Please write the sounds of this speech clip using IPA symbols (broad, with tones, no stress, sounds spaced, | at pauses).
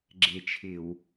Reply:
ɡ͡ǁ e˧˩ t͡ʃʰ ɪ˧˩˧ w